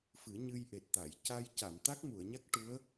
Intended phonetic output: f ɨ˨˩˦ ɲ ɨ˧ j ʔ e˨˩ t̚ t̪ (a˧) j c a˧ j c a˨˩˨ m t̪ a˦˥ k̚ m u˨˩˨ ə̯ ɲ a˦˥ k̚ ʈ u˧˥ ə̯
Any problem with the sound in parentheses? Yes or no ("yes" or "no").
yes